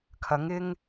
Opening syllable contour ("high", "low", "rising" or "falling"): rising